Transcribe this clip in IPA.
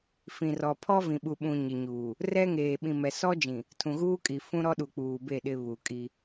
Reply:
fĩ˨ rɔ˨pʰɔ˦ vĩ˨ɓu˨ɓũ˨ ɲɪ˨ɲuː˨ | rɛ˦ŋeː˨ ɓĩ˨mɛ˨ sɔ˦d͡ʒĩ˨ | tʰũ˨ɣuː˦kʼi˨ fũ˦ ɾɔ˦ɗu˨k͡puː˨ be˦˨ ɗɪ˨ βu˨kʼi˦

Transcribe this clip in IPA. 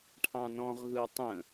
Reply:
ʈʰɑ̃nɔ̃ʁɣɯw tˤə̃

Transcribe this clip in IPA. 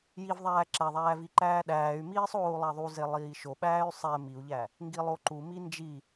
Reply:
jivðˤæː ǁæðˤæːv iǃæːɗæːy̯miːsˤ oːu̯lˠæðˤuze lˠiːʃoɓæːy̯ sˤɛ miu̯ʎæ | ŋɡilˠoǃumi nd͡ʒi

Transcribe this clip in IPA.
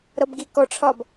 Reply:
ɾʌbɡikɔʈ͡ʂʰɒb

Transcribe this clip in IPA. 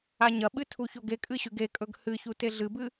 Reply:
aɲɐɓɨ tʰuçoɡekʼɨ ɕʉɡekʼɵɡ hɨçu teɮɨbɨ

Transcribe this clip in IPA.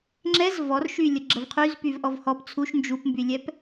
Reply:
ŋ͡ǁɛz vɔrʃylʲə ɡ͡ǁəvqʰyzpyv ʔɔvhɔp t͡sʰuʃ nd͡ʒupmbylʲɛp

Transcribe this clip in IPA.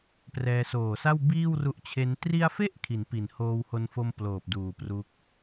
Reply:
prɛː˧soː˨˩sa˥˩w biː˥˩wru˦˥ʔt͡ɕʰe˦˥n tri˧a̯fe˦˥ʔ kʰi˩˦npi˩˦nhoː˧who˧n fo˧m ploː˨˩p̚duː˨˩pru˦˥k̚

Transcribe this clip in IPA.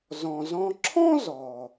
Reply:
zɔ̃˩zɔ̃˧ ǁʰɔ̃˥zɔː˩

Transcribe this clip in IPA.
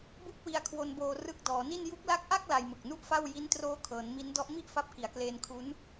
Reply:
bu˦˥k̚ wi˧a̯kʰwo˧nboː˧ rɯ˦˥k̚dɔː˩˦ni˥˩n ju˦˥k̚la˦˥k̚ʔa˥˩k̚ la˧jmɯ˨˩k̚nu˥˩ʔfa˥˩w ji˦˥ntroː˦˥kʰɤː˩˦n mi˦˥n dɔ˦˥ʔmi˥˩ʔfa˦˥p̚ ki˩˦a̯kleː˧nkʰu˦˥n

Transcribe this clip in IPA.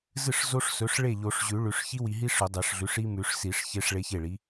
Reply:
zɨ˥˩ʂ zo˦˥ʂsɵ˩˥ʂ ɭe˥˩ʎo˨˩˦ʂʑʉ˨˩˦ ɭʉ˨ʂ çi˦˥wi˨ɦi˦˥ ʂɵ˨˩˦dˤe˨˩˦ʂɮʉ˩˥ʂ i˦˥mʉ˨˩˦ʂsi˨˩˦ʂ çe˦˥ʂɭe˦˥çe˥˩ɭi˩˥

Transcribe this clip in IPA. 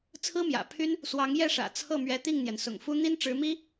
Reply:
t͡sʰɹ̩˥mjä̰˨˩pʰy˥n | swɑ˧˥ŋjɛ˥˩ʂä̰˨˩ t͡sʰɤ˥˩mɥɛ˧˥t̪i˥˩ŋn̪jɛ˩n sʊ̰˨˩ŋfu˥ n̪i˥n ʈ͡ʂɻ̩˧˥mi˥

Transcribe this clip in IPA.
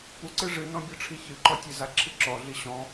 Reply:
puǀɨ ʐɨnɔ̃bʲɔʈ͡ʂʰi çɨǃɔtʲeza ǁʰɨǁɔɮi ɕɔ̃

